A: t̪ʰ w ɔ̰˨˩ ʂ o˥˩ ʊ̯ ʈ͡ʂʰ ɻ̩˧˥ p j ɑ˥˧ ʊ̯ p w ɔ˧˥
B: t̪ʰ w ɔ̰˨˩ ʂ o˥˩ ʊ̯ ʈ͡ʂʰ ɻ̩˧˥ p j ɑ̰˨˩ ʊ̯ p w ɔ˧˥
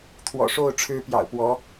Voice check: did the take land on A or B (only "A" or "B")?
B